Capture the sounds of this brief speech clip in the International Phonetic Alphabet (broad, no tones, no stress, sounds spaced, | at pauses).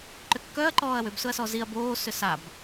ǃ ʏ kː œ ɐ̯ ǃ ɔː ɐ̯ w ʏ b s ʊ ɐ̯ s ɔ z i ɐ̯ b oː s ʏ s a b